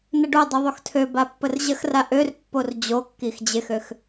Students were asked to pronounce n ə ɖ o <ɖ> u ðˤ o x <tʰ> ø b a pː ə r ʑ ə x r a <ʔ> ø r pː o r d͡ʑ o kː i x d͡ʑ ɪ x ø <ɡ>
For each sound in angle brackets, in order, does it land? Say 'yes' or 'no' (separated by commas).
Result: no, yes, yes, no